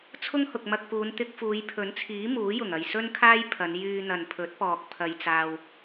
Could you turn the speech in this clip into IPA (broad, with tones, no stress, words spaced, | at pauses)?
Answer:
t͡sʰʊ˥ŋhʊ˨k̚mɐ˧k̚puː˨˧n t̪ɪ˧k̚fuː˨˧jpʰɵ˨˥nt͡sʰiː˨˥ muː˨˥jʊ˨˩ŋ ɐ˨jsɵ˥nkʰaː˥j pʰɐ˨˧n jyː˧n̪ɐ˨npʰɵ˨˥t̚pɔː˨k̚ pʰɐ˧jt͡saː˧w